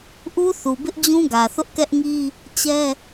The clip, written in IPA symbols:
ʔ u˦ θ u˨ b ɪ˦ ʔ d͡ʑ ũ˦ ɡ ä˨ θ ʊ˦ ʔ k ɛ˦ ʔ ŋ i˦ | t͡ɕ ɛ˦

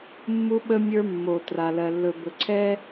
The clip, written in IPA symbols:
mː u˦ ɓ ə˦ mʲ ə˞˦ mː o˨ t r a˨ l ɜ˨ lː ɵ˨ b ɵ˨ ǀʰ ɛ˦

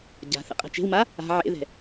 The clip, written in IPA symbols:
ɟ a̤ θ ɛ̰ qʼ ɛ̤ t͡ʃ e̤ w m a | a̤ ʕ ḛ ð ɛ̤

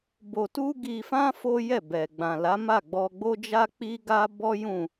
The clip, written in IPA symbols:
b o˧ t u˦ ɡ i˧ f ã˦ f o˦ j ɛ˦˨ b ɛ˨ ɡ͡b ã˨ l a˨˦ m a˦˨ ɡ͡b ɔ˧ ɡ͡b o˦ d͡ʒ a˦ k͡p i˦ ɡ a˦ b ɔ˦ j ũ˦˨

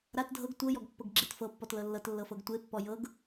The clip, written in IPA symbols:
ɾ a t dʱ ɤ ɡ tʷ ɤ j ɔ ɡ pː ɤ ɡ ɡ͡ǁ e t f ɤ pː ɔ t l ɤ lː ɤ t lː ɤ f ɤ ɡ tʷ e pː ɔ j ɤ ɡ

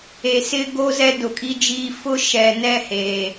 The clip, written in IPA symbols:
e˨ s ɪ˦ ɡ o˦ z ɛ˦ d ʊ˨ kʼ i˦ d͡ʒ iː˦ f ʊ˦ ʃ ɛ˨ n ɛ˦ h eː˨

